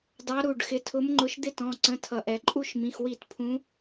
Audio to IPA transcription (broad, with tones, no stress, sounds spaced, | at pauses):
d ɑ˨˦ ɾ u˩˧˩ ɖ x ɪ˨˦ tʰ ʊ˨˦ m ŋ͡ǃ ʊ˨˦ ʃ d̪ ɪ˥˨ t ɔ̃˩˧˩ ǀ ə̃˩˧˩ tʰ ʌ˩ ʔ ɛ˩ ǃʼ u˥˨ ʃ m ĩ˩˧˩ x w i˧˩˧ t pʰ ũ˨˦